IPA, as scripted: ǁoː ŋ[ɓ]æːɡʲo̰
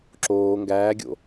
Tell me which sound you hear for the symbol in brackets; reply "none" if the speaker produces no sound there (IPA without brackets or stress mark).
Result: ɡ